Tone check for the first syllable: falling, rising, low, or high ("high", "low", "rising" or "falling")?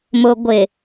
low